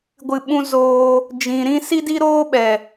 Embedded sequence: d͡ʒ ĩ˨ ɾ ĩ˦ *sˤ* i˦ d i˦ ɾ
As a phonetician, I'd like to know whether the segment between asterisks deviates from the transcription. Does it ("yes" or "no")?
yes